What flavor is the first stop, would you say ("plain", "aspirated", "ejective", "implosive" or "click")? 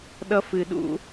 implosive